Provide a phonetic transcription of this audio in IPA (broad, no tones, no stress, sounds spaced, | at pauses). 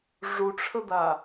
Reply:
ʐ u ʈ͡ʂʰ ə d̪ a